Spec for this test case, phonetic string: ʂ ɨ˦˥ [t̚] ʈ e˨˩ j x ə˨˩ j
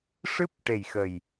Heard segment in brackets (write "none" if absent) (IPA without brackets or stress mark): p̚